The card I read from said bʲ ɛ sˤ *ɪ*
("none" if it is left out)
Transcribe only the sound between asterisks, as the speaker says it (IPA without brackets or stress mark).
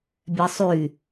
y